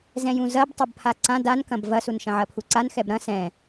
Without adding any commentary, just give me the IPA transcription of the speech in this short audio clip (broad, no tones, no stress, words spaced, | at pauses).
zɛ̃jũzɐb tˤɐbpʰaǀã dankɐ̃b vɐsunʃɐ̃ʕɐ pʰuǀan xɛbɾɐ̃ sɛ̃